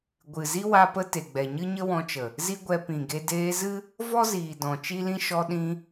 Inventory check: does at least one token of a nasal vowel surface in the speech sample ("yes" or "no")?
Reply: yes